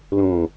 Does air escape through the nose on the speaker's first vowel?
yes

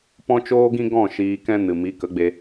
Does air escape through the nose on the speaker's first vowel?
yes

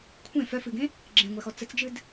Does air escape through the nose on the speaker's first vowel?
yes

